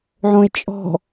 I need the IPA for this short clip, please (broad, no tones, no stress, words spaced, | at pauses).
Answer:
ʕõe̯t͡ʃʼɔ̤